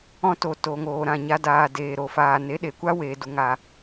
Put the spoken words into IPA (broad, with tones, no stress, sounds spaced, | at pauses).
ɔ̃˧ t o˨ t o˨ ŋ oː˨ ɾ ã˦˨ ɲ a˧ d aː˨ d eː˨ ɾ o˨ f aː˨ n e˨˦ ɗ e˨ kʷ a˦ w eː˨ d u˨ ŋ a˨